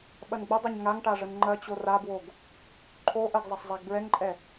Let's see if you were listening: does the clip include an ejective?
yes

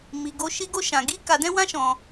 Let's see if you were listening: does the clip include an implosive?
no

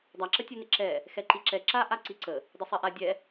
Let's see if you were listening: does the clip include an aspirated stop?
no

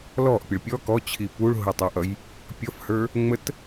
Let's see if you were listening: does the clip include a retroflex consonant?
yes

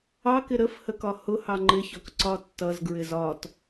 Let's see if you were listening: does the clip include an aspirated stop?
no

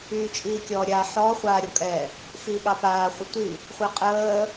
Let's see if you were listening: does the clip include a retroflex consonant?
no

